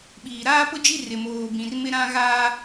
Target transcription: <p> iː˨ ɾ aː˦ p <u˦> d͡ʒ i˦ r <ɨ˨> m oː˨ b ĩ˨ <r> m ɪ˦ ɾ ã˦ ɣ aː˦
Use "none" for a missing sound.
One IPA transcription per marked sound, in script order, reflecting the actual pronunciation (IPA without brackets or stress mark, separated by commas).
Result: ɓ, ʊ˦, ɪ˨, r